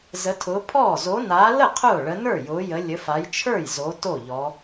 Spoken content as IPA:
z ə˨˦ tʰ ʊː˨˦ pʰ ɔː˥˩ z o˨˦ n aː˨˦ l ə˥˩ qʰ ʊː˥˩ ɭ ə˨˦ n ə˞˥˩ j ʊː˨˦ j ə˨˦ lʲ ə˨˦ f a˨˦ j t͡ʃʰ ə˞˥˩ j z o˨˦ t o˥˩ ʎ ɔ˨˦

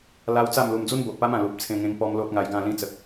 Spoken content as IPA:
l a˧ w t͡s a˥˧ m l u˧ m d͡z u˧ n b o˨ ʔ p a˧ m ã˨˩ l u˨ p̚ t͡sʰ ẽ˧ ŋ ẽ˧ ŋ p ɔ˧ m l o˦ t̚ ŋ a˧ j ɡ ã˥˧ l ĩ˧ t͡s ə˨ k̚

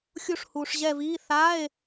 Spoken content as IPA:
xʲ u˦˨ ʂ h uː˨ ʂ ʑ ɛ˦˨ v iː˧˥˧ θ a˧˥˧ e̯

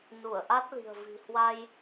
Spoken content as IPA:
n u˧˩ ə̯ ʔ a˦˥ t̚ l i̤˨˩ ə̯ v i̤˨˩ h w a˧ j

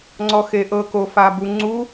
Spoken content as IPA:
ŋ͡ǀ ɔ x e ʔ ɤ k o f a b u ŋ͡ǀ u

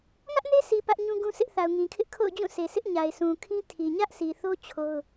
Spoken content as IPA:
ŋ ä˦ ʔ n e˦ sʰ i˨ p ä˦ ʔ ɲ ũ˦ ɡ ũ˦ sʰ ɪ˦ ʔ θ a˨ ʊ̯ ŋ ĩ˨ kʰ ɪ˦ ʔ kʰ o̰˦˨ ʊ̯ d͡ʑ ũ˦˨ sʰ e˨ sʰ ɪ˦ ʔ ɲ a˨ ɪ̯ sʰ ũ˨ kʰ ĩ˦ tʰ i˨ ɲ ä˦ ʔ sʰ i˨ θ o˦ t͡ɕʰ o˦ ʊ̯

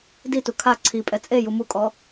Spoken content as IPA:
d i t u kʰ a ǀʰ i pʼ ɛ t͡sʼ e j u m u kʼ ɔ

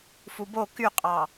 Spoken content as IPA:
f u b o k y qʼ ɑ

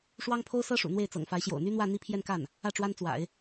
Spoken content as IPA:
ʂ w ɑ˥ ŋ pʰ o˥ ʊ̯ s ɤ˥ ʂ ṵ˨˩ n̪ w e˥˩ ɪ̯ t͡s ɤ̰˨˩ ŋ f a˧˥ ɪ̯ ɕ j o̰˨˩ ʊ̯ n̪ y˥ n̪ w ä˥˧ n̪ i˥˧ pʰ j ɛ˥˧ n k a˥˩ n | ä˥˩ ʈ͡ʂ w a˥ n t͡s w a̰˨˩˦ ɪ̯

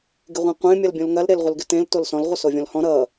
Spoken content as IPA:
ɡ ɪ ʁʷ ẽ qʷ ẽ mʲ ʌ l bʲ õ l ŋ ɐ l ɾ e l ʁʷ ɪ l ɡ ɪ t ẽ l t o l s ɔ̃ l ʁʷ ʌ s o vʲ ɔ̃ l h ɔ̃ ɾ ʌ

